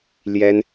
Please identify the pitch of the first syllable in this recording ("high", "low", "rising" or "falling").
high